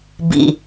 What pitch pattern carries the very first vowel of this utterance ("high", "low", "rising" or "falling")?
low